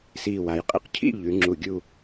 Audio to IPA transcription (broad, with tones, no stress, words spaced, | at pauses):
siː˧˩wa˩˧j qʼḭ˧qcʰḭ˥˧ ʎʉ˩˧ ŋ͡ǁu˧˩ɡʲu˥˧